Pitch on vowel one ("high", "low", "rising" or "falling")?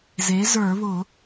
rising